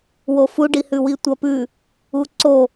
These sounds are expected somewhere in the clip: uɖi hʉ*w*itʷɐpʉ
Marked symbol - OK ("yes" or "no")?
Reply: yes